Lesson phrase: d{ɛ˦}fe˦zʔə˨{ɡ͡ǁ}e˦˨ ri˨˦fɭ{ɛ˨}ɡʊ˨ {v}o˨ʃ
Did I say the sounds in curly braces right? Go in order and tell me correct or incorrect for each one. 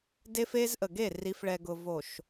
incorrect: e˦, incorrect: ɡ, correct, correct

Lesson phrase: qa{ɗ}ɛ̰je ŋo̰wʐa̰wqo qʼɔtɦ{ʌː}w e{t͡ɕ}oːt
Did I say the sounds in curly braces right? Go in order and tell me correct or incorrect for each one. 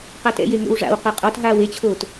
incorrect: t, incorrect: aː, incorrect: t͡ɕʰ

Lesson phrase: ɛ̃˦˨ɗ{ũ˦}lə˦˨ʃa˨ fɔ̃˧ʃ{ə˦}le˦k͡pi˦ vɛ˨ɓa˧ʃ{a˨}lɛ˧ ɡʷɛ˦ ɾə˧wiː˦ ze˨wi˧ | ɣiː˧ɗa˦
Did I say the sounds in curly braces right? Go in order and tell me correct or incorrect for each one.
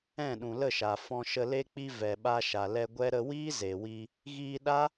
incorrect: ũ˨, incorrect: ə˧, correct

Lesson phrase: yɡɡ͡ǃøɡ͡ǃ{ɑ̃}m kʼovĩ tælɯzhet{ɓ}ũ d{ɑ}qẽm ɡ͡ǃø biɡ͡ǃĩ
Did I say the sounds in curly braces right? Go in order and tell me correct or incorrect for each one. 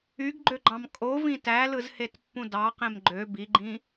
correct, incorrect: pː, correct

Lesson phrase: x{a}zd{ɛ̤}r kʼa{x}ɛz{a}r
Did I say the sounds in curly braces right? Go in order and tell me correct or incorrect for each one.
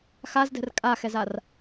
correct, correct, correct, correct

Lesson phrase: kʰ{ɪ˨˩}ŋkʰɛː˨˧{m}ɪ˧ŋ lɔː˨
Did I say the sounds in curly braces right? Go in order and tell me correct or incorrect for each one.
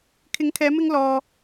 incorrect: ɪ˨˥, correct

